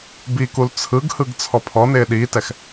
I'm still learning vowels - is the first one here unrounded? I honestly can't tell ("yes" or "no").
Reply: yes